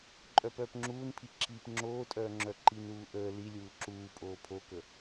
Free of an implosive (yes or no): yes